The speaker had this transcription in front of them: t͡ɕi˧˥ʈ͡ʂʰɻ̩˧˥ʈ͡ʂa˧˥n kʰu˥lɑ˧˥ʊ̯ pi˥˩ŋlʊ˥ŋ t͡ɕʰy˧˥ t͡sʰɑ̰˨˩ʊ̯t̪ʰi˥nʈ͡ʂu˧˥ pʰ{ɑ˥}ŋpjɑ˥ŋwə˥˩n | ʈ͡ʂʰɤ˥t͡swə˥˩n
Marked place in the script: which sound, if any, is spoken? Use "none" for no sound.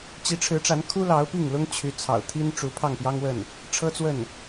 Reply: ɑ˥˩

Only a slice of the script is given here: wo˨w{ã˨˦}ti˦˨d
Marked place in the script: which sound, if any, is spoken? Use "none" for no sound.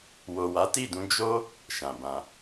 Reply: a˨˦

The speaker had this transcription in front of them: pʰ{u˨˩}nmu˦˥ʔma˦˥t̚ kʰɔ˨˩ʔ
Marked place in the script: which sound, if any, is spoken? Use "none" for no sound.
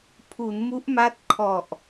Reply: u˩˦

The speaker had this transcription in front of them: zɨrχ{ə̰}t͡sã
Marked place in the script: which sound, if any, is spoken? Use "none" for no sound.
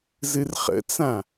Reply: ə̰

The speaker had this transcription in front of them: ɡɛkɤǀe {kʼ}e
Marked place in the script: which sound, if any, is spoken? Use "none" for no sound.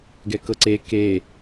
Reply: k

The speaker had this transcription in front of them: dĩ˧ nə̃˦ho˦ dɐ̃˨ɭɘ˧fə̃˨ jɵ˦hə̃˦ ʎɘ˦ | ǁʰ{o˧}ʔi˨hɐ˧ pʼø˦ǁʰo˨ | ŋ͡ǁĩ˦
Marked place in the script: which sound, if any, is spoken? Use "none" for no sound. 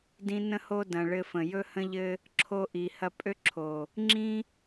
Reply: o˧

